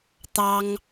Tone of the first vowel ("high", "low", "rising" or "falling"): high